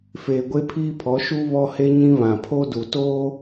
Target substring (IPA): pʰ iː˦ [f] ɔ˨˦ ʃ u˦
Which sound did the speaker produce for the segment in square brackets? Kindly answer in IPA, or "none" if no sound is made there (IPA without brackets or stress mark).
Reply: pʰ